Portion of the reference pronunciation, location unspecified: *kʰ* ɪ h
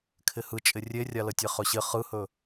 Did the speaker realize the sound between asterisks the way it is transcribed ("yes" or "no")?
yes